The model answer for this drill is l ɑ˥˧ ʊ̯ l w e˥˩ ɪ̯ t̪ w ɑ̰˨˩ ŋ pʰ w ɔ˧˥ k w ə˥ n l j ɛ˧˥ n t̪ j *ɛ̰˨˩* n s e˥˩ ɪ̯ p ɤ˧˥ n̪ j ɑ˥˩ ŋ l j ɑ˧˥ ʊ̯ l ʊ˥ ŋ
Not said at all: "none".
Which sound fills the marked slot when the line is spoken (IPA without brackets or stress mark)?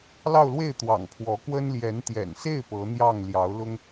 ɛ̰˨˩